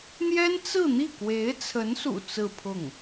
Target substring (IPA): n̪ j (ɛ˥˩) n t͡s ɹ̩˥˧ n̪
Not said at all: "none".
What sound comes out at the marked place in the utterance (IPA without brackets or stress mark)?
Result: ɛ˥